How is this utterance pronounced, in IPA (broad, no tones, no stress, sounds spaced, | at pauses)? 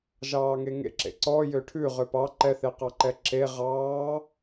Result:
ʒ ɑː ŋ e ŋ ḛ ǁ ḛ ǀ ɔ j ø ʈʰ ʉ ʁ ø p ɑ ǃ ɛ θ e q ɑ ǃ ɛ ǁ e ʁ ɑː